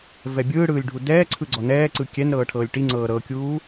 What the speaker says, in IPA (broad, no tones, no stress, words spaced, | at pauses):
vɛbʲɯːɽɯːlʲ ɖʱudɛːǀʰɯ ɡ͡ǀɔnɛːǀɯ kʲɛn ɾɤːʈʰɤːlʲʈiŋ͡ǀɤː ɾɤkʲuː